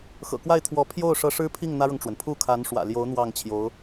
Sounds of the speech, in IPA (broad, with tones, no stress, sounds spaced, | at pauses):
x ɤ̰˨˩ k w a˥˩ ɪ̯ t̪ʰ w ɔ˧˥ pʰ j o˥˩ ʊ̯ ʂ ɤ˧˥ ʂ ɻ̩˥ pʰ i˥˩ ŋ n̪ ä˥ ɻ ɤ˨ ŋ ʈ͡ʂ w ə˩ n pʰ u˥˩ kʰ a˧˥ n ʂ w ä̰˨˩ l j o˧˥ ʊ̯ n̪ w ɑ˥˩ ŋ t͡ɕʰ j o˧˥ ʊ̯